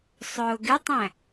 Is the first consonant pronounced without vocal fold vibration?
yes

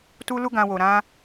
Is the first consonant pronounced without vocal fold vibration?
yes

